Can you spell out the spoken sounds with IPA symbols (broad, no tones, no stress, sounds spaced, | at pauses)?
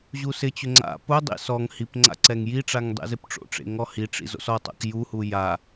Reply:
ʑ u s ɪ t͡ɕ ʊ ŋ͡ǀ a̰ p ʊ dˤ ḭ s ɔ ŋ h i p ŋ͡ǀ a̰ ǀ ɛ ŋ j i ʈ͡ʂ a ŋ dˤ ḛ z ɪ p ʈ͡ʂ o̰ ʈ͡ʂ ḛ ŋ ɔ h i ʈ͡ʂ ḭ z o̰ s ɔ tˤ a̰ k j u h u j a